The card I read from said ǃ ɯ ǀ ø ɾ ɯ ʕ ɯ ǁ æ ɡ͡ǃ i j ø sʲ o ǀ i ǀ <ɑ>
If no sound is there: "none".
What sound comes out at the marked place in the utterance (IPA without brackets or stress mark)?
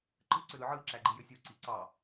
ɑ